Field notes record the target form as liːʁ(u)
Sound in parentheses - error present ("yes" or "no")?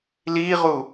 no